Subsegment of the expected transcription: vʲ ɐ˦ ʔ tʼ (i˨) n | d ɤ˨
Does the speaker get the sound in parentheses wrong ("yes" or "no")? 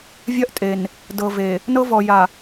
yes